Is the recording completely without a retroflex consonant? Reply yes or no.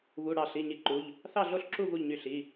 no